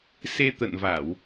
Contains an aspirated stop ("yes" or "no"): no